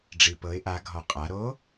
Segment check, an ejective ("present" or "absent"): present